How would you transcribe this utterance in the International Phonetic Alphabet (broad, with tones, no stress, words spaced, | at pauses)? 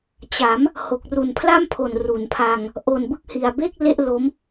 t͡ɕa˩˦m | ho˨˩k̚ru˨˩npʰla˥˩mpʰo˨˩n ru˩˦npʰa˧ŋ | ʔo˨˩nbɯ˦˥k̚hi˨˩a̯be˥˩k̚ le˥˩ʔlo˦˥m